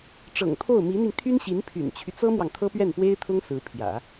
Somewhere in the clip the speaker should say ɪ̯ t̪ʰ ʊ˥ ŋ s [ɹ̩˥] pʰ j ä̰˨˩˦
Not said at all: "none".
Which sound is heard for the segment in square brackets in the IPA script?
ɹ̩˧˥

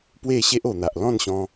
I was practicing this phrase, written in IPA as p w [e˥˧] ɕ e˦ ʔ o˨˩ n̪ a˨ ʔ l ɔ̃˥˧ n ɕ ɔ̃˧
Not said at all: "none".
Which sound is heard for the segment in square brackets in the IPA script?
e˥˧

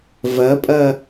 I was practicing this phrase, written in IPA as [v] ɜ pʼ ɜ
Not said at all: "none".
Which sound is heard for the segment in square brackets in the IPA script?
v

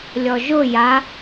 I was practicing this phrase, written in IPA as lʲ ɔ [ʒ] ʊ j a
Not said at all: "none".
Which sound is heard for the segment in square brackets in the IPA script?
ʒ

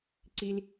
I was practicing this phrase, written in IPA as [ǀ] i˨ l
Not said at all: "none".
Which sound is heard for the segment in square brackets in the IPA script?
ǀ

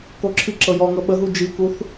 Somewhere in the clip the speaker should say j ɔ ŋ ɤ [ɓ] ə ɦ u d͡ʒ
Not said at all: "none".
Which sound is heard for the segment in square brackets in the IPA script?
ɓ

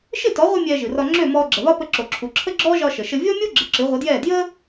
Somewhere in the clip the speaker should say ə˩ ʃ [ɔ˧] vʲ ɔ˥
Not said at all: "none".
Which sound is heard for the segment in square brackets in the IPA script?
ə˧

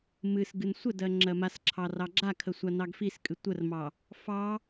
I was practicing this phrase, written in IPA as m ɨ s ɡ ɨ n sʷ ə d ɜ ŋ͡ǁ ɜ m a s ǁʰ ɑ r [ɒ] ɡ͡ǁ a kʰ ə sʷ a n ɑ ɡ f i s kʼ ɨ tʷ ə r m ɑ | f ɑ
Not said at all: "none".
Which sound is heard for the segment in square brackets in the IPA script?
ɑ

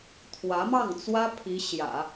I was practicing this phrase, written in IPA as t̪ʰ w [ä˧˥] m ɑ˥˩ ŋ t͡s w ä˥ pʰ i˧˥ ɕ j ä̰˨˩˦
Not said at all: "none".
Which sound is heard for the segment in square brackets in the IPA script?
ä˧˥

